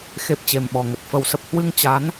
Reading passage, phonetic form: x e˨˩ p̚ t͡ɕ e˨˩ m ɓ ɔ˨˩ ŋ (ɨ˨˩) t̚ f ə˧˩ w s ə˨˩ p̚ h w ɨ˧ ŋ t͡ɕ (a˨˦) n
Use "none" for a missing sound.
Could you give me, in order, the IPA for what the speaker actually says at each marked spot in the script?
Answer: ə˨˩, a˨˦

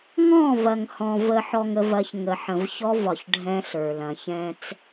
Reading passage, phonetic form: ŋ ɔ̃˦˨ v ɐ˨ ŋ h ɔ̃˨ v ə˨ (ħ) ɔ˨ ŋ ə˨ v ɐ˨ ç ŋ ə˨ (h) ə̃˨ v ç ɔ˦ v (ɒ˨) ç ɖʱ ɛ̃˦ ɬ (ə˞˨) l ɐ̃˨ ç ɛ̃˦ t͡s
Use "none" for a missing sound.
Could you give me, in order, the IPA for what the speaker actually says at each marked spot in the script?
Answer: ħ, ħ, ɒ˨, ə˞˨

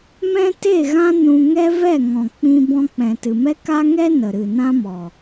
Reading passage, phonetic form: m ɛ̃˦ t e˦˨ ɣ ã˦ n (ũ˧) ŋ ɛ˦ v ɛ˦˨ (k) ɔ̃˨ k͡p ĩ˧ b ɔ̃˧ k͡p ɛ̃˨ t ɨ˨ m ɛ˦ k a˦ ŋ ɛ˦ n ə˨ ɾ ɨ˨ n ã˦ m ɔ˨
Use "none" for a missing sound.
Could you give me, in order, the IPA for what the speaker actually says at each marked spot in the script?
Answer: ũ˧, ŋ

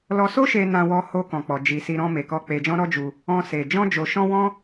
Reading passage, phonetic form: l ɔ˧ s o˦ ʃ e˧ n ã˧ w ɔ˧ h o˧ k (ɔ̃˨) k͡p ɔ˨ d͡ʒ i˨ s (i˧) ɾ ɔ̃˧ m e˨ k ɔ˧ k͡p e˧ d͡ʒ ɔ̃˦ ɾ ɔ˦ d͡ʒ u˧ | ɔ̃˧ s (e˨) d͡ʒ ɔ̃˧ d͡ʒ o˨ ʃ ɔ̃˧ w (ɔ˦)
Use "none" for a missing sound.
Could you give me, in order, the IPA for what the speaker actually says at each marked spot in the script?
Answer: ɔ̃˨, i˧, e˨, ɔ̃˦

